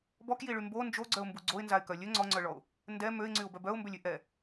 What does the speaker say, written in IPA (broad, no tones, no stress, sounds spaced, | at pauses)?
b ɔ k j i ɭ y m b o n d͡ʒ o ɡ͡ǀ œ ʊ̯ m b u ɡ͡ǀ o ɪ̯ n z a ɪ̯ k œ lʲ ø ŋ͡ǀ ɔ ŋ͡ǀ œ ɭ ɔ ʊ̯ | n d ɛ m ø ɪ̯ ŋ͡ǀ y ʊ̯ b œ b œ ʊ̯ m b ø lʲ y ʔ ɛ